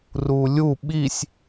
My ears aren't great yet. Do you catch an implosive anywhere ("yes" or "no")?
yes